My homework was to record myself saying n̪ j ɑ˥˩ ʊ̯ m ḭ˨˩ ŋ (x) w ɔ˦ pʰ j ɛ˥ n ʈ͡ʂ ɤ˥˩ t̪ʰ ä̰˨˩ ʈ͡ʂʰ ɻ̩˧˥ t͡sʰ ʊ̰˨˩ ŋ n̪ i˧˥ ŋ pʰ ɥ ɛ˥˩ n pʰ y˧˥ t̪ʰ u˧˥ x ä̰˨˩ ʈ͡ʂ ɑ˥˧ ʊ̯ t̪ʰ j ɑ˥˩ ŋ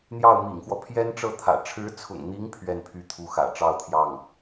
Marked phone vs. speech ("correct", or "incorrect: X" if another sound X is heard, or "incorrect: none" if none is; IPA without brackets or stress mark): correct